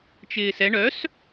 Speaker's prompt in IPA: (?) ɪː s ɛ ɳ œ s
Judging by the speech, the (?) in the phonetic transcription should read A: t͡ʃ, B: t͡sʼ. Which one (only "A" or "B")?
A